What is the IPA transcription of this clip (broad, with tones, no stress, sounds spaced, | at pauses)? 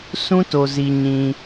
s ũ˦ t o˨ z i˨ ɲ ĩ˦